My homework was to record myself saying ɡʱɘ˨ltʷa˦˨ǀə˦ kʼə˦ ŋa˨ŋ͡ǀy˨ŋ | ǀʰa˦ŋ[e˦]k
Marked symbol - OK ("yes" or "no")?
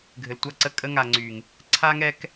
no